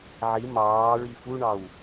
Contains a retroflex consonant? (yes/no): yes